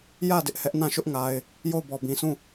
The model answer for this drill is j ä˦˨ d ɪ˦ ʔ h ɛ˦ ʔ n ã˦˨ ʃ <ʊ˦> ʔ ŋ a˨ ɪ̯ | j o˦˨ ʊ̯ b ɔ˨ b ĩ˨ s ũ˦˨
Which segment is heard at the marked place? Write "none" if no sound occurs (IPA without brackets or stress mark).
ʊ˦